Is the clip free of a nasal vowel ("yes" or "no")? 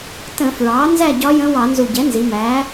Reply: no